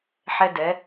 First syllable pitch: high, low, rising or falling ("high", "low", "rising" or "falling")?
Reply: high